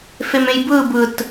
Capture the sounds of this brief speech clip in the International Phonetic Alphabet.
f e m ẽ j b ɯː b ɯ t

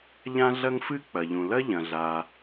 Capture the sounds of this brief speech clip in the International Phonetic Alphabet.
ʎ ã˥ ɮ ɐ˥ ŋ f ɨ˥ k͡p ɐ˩ ʎ ũ˩ l ɐ˥ ʎ ɐ̃˩ ɮ a˩

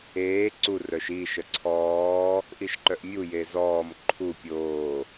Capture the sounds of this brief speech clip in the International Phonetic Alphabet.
eː ǀ u r œ ʃ i ʃ ə ǀʰ ɔː | ʔ i ʃ ǃ œ ʔ mʲ u j e z ɔː m ǃʰ u pʲ oː

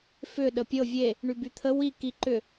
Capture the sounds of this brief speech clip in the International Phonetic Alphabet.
f ʏ ɗ ə pʲ ɤ vʲ e | ɳ y b y t̪ʰ ə w i k i ǃ ʏ

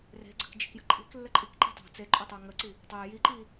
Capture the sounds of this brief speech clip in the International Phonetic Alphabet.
r e̤ ɡ͡ǀ ə̤ k d͡ʒ i̤ k j ə̤ ǃʼ i̤ k lː ə ǃʼ i k ǃ i̤ tˤ o̤ t͡s e ǃʼ o tˤ o ŋ ə ǀ i | tˤ e j i ǃ i

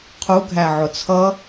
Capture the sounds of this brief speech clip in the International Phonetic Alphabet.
qʰ u ɡʱ æ ʕ ʊ t͡sʰ ʌ

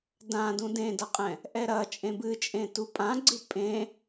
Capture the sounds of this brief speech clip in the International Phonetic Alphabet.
d ã d ũ d ẽ d ɐ qʼ ɛ̃ | ʔ ɛ ɾ ɐ t͡ʃʼ ẽ b ɨ t͡ʃʼ ẽ t u pʼ ã ɡ͡ǀ ɨ pʼ ẽ

